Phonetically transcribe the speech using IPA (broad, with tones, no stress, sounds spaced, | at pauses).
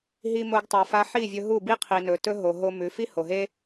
ɦ i˧ m o˧ ɡ tˤ a˨ f a˧ ħ i˦˨ vʲ ɵ˧ ɦ u˦˨ b i˦ qʰ i˨ n ɵ˨ t ɵ˦ ɦ o˨ ɦ o˧ m ʉ˨˦ f i˦ h o˨ ɦ e˦